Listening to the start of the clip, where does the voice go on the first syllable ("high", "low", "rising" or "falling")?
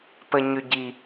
low